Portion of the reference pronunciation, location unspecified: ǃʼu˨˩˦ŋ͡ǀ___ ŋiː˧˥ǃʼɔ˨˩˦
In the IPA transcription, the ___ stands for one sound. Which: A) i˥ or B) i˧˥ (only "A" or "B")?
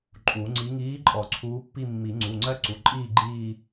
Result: B